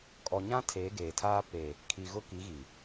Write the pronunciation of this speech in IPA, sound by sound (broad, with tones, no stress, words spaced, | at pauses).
kʼɔ˨ɲã˦ tʰeː˨˦ɡeː˨tʰaː˦ pe˨ | kʰi˨ ɣʊ˦ki˨˦ɣi˨